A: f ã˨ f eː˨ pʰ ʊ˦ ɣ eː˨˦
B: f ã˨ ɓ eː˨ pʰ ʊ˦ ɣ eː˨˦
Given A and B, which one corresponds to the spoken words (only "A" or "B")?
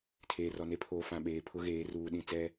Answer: B